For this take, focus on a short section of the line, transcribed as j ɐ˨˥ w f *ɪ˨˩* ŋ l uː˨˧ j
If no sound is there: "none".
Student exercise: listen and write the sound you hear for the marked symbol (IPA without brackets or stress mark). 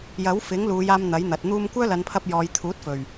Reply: ɪ˨˥